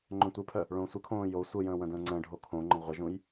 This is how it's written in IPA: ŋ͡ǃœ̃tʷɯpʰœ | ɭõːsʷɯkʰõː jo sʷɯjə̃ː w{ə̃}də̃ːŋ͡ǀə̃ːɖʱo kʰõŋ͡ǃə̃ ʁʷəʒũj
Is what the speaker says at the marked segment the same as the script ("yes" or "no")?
yes